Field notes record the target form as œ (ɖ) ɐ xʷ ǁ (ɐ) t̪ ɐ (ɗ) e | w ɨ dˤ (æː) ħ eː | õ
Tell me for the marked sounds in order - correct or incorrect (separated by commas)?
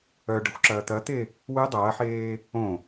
correct, incorrect, incorrect, incorrect